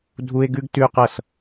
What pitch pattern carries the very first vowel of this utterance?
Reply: high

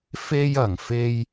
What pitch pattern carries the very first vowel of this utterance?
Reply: high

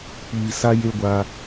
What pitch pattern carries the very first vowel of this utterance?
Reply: low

